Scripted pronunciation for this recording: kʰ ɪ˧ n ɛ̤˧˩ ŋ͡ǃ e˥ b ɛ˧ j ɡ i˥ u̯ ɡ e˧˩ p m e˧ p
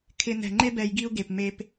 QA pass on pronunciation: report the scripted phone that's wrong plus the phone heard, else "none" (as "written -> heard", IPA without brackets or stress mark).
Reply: none